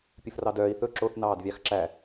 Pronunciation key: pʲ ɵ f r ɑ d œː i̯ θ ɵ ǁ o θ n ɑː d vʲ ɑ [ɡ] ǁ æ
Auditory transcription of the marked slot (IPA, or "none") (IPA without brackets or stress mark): x